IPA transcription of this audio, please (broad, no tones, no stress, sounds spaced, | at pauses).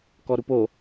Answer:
k ɔ ɾ u p o